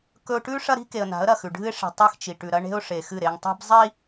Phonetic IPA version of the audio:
kɵ˦ʊ̯ ʈʉ˦ ʂɐ˦ɾi̤˦ke˨ə̯na̤˨˦ə̯ ɾɐ˨xʉ˨ ɖʱɨ˦ɪ̯ʂi̤˨ tˤɨ˦xt͡ʃi˨ ʈʉ˨ɾɐ˦ ɳe̤˦ʊ̯ʂe˨xɨ˦˨ ɾe˨ŋtˤi̤˦b zˤi˦

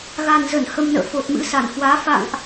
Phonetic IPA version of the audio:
ɣa˨˩nzə˧˩n hə˧mnə̰ː˧˨ fo˨˩t̚mɨ̰˧˥sa˧˩nhwaː˨˦ fa̰˧˨ŋʔ

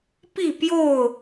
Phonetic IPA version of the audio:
pi˥˨pjo˥˨ʊ̯

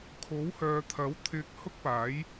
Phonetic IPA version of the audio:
kʰo˨˥whœː˨˧t̪ʰɐ˨˥w t̪ʰɪ˧k̚hʊ˥k̚paː˨˥j

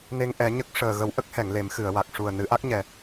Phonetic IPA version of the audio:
ne˧ŋʔɛ˨˩˦ɲə˦˥k̚ ʂəː˨˩ɣə˨˩˦w ʔə˦˥k̚hɛ˨˩˨ŋ le˨˩˦mxɨ˨˩˨ə̯wa˨˩k̚ ʂu˨˩ə̯nɨ˨˩˦ʔa˦˥k̚ɲɛ˨˩

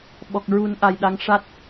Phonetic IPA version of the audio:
ɓɔ˨˩k̚ɹu˨˩˦n ʔa˨˩jɗa˧˥ŋ ʂa˦˥t̚

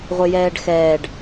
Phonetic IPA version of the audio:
ʁʷɪjɛːɖxɛːɖ

